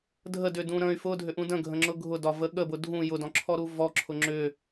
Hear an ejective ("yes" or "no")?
no